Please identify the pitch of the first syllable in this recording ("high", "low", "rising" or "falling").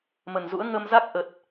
low